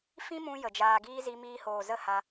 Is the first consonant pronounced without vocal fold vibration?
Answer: yes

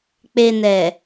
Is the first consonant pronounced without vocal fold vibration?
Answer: yes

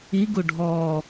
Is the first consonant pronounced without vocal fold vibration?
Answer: no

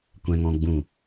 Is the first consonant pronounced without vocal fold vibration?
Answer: yes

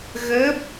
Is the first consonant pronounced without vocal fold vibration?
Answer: no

